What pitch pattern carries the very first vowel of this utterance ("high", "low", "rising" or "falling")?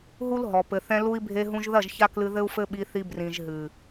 high